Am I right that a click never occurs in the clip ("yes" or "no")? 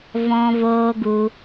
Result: yes